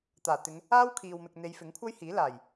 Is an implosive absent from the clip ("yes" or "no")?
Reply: yes